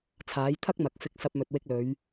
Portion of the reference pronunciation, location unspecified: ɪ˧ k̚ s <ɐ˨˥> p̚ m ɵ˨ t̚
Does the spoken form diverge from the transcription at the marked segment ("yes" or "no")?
yes